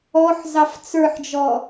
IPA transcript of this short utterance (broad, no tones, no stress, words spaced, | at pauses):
ɔħ zɑft͡sə˞ħd͡ʒɔ